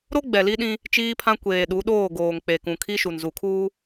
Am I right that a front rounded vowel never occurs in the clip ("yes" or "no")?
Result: yes